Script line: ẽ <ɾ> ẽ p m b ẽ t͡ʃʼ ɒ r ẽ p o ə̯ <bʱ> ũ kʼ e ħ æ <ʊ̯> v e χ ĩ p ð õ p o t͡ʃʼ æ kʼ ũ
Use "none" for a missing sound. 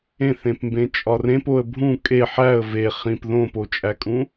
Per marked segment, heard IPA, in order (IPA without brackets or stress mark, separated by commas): θ, bʱ, ə̯